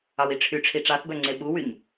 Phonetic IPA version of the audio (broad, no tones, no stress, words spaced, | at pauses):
ɑwiʈ͡ʂʰyʈ͡ʂʰi ʈ͡ʂɑθbœŋ͡ǀe ɓuwyɲ